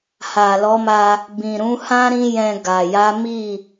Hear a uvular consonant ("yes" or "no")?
no